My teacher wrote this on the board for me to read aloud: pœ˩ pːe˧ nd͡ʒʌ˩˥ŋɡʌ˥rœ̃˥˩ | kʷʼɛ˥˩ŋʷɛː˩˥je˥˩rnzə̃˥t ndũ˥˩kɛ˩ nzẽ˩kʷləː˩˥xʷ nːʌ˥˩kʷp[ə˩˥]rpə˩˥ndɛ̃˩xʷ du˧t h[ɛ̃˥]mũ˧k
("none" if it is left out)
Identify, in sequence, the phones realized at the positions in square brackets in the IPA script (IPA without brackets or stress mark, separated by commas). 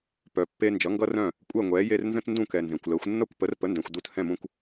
ə˩˥, ɛ̃˥˩